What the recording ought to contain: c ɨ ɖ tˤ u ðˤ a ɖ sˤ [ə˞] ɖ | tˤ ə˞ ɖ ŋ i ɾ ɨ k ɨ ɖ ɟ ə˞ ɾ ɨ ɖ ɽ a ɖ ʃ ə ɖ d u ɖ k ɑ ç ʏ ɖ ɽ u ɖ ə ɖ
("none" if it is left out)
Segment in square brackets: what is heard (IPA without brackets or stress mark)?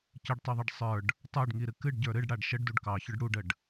ə˞